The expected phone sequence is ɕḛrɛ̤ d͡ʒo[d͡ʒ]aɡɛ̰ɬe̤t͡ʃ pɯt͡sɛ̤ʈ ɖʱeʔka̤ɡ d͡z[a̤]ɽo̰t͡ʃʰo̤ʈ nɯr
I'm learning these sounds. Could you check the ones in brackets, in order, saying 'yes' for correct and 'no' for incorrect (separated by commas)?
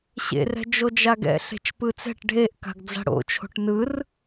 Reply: yes, yes